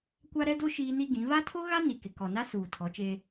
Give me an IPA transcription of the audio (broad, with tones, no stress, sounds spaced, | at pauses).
kʷ a˦ ɾ ɛ˦ d o˦ ʃ iː˦ n i˦ ɡ ĩ˨˦ β a˦ tʰ o˦ ɣ a˦ n i˨ k ɪ˨ k ɔ˨ n a˦ s uː˨ tʰ ɔ˨˦ t͡ʃ eː˦